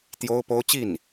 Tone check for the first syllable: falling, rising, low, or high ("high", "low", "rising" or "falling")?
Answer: high